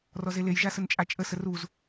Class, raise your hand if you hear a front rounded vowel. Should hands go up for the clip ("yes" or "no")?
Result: no